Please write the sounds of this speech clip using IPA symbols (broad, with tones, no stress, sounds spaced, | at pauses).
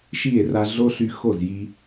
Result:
ʃ i˦˨ e̯ r a˧ ɮ o˦ ɬ y˧ x o˦˨ z j i˧